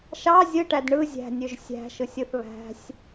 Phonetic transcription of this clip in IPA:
ʃ ɑ zʲ ɯ ʈ æ d ɳ ɯ zʲ æ̤ nʲ ø ʒ sʲ æ̤ ʃ ɯ sʲ ɯ θ β æ̤ sʲ

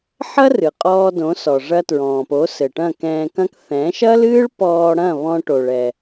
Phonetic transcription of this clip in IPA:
ħ ɐ˥ r ɨ˩ qʼ ɔː˧ d õ˩˥ s ɔ˩ ʐ ɐ˧ t ɹ ɔ̃ː˩ p o˩˥ s ɘ˩ ʈ ɐ̃˥˩ k ɛ̃ː˧ k ɐ̃˥ k θ ɛ̃˩˥ ʃ ɐ˥ l ɨː˥ ɭ p ɔː˧ ɽ ɐ̃˥˩ β ɔ̃˧ ʈ o˩ ɭ ɛ˩

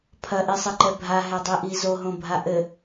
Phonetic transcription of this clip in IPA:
pʰ ɐ ʔ i sˤ ɘ ǃ ɛ bʱ a ɦ ɛ dˤ i ʔ i z o ɦ õ bʱ a ʔ ɘ

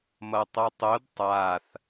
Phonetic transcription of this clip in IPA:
m ʌ tˤ ʌ tˤ o d tˤ a θ

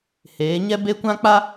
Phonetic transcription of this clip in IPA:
h eː˨˦ ɲ ɛ˦ b e˦ kʷ ã˦ k͡p a˦

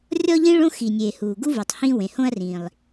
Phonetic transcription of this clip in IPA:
rʲ ɔ˥ ʎ ĩ˥ ɭ õ˥ x i˩ nʲ e˩ h uː˩ ɡ u˥ v u˩ tˤ h ĩ˥ w ẽ˩ h õ˥ ɐ̯ r ĩː˩ lˠ

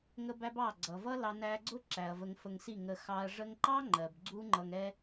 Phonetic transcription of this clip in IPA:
ŋ ə˦ b æ˦ b ɑ˦˨ ɡ͡ǀ ʌ˨ v ʌ˦ l ɑ˧ n æ˧ ɡ͡ǀ ʊ˦ ǁ æ˨ ɐ̯ v ə˧ ŋ f ə˧ ŋ s i˦˨ ŋ ə˧ x ɑ˧ ɐ̯ ʐ ə˧ ŋ ǃ ɑ˦ ŋ͡ǃ ɜ˨ b ɡ͡ǀ u˦ ŋ͡ǃ ʌ˧ ŋ ɛ˦

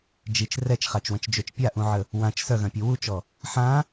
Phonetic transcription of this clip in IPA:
d͡ʒ i t͡ʃ r ɛ t͡ʃ χ a t͡ʃ w ə̃ t͡ʃ d͡ʒ ø t͡ʃ pʲ a ʔ ũ ʕ ə | w ã t͡ʃ s œ ɣ œ̃ pʲ u w u t͡ʃ ɔ | ħ ã

